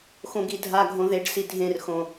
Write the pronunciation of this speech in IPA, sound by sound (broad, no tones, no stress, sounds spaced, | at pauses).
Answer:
x õ ɡ i dʱ a ɡʱ õ ð e ɖ s i dʱ ẽ r x õ